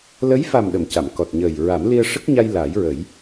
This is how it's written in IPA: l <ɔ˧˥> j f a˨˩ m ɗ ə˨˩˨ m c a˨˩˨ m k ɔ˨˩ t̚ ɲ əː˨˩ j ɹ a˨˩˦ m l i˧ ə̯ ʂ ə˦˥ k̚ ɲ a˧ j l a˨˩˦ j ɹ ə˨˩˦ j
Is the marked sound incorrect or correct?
incorrect